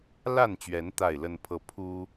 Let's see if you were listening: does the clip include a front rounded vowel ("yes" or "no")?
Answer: no